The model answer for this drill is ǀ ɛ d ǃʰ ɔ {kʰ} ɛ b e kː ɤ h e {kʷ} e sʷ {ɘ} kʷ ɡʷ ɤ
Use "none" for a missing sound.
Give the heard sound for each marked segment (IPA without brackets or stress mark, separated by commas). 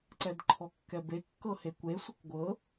kː, kʷ, ɘ